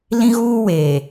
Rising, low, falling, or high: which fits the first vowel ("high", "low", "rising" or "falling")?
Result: high